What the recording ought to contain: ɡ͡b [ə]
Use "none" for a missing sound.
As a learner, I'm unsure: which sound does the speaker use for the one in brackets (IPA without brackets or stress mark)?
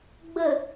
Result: ə